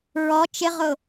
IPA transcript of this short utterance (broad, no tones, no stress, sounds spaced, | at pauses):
ɹ ɔ t͡ʃ ɪ ʁ ʊ